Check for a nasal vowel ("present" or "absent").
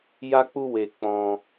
present